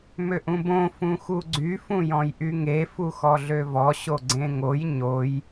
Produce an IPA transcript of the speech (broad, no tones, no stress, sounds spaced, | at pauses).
m ø ʔ ũ b õ f ũ x u ɡ͡ǀ y f ũ j ɔ̃ j ʔ y ŋ e f u x ɔ ɮ ø v ɔ ɕ o ɡ͡ǀ ẽ ŋ o j ɲ o j